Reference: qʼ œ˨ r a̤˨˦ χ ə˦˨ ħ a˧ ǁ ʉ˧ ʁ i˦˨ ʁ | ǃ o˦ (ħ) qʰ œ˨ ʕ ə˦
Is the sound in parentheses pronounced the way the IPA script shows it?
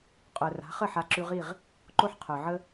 yes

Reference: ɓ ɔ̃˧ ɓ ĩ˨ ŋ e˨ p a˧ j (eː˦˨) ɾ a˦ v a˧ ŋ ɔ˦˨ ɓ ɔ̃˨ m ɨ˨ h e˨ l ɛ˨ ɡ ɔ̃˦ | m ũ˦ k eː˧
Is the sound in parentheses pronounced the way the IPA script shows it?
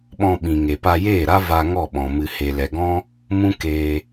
yes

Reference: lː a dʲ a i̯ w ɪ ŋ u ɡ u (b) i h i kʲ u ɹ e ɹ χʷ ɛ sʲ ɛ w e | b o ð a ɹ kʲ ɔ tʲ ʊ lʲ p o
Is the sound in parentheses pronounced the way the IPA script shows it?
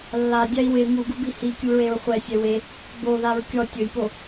yes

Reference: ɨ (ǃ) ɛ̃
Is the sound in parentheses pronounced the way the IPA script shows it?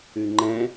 no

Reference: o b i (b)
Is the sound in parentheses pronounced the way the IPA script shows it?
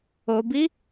no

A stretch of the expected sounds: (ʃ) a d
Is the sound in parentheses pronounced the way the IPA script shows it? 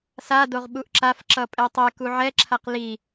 no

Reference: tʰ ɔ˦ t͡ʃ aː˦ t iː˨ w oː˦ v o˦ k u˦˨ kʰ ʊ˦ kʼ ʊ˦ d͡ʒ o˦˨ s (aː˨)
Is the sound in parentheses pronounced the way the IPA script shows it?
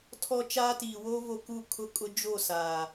yes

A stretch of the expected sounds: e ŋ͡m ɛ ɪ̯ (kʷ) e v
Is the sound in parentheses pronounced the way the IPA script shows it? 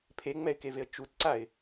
no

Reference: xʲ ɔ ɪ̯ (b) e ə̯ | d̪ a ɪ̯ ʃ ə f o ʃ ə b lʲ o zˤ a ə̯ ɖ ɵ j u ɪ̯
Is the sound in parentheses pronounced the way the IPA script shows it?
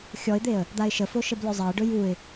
no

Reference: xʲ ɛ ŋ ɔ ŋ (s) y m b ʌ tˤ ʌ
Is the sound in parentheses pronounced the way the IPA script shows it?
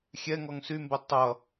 yes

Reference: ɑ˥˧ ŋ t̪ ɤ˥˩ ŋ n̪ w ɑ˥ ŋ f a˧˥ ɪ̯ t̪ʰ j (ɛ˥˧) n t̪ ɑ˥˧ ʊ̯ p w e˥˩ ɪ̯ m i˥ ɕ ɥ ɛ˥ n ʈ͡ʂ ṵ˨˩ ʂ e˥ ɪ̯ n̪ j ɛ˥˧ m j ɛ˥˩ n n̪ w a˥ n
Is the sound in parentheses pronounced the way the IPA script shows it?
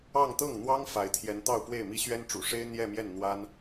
no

